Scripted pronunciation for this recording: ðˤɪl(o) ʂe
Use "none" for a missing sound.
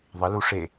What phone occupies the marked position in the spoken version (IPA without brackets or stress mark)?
u